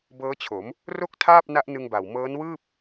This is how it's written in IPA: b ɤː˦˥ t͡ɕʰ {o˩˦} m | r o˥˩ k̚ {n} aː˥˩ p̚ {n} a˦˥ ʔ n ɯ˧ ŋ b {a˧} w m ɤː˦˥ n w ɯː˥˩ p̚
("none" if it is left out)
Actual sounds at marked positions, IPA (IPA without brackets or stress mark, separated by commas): o˩˦, tʰ, n, a˨˩